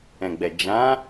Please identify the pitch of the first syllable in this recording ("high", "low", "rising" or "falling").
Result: low